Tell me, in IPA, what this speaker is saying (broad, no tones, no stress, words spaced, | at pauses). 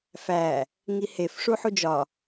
fæ | ŋihefʂu ħud͡ʒɒ